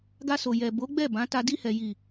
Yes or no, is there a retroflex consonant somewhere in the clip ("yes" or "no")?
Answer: no